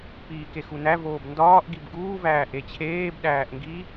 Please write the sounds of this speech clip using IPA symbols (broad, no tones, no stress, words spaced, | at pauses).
piːkexunæ voːbndɒːʔ ɡibɡuː væːʔet͡ɕʰeːb ɗæːʔŋɡi